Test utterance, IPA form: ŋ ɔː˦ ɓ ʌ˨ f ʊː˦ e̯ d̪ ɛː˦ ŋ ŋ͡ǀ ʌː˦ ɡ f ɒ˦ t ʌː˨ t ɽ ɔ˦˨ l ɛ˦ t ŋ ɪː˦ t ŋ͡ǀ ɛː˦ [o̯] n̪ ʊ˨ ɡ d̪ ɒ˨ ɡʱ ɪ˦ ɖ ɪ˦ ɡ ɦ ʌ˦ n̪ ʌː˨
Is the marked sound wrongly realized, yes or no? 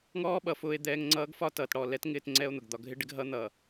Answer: no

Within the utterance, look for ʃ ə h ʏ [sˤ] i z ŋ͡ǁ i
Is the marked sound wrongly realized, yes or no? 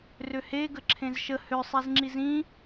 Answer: no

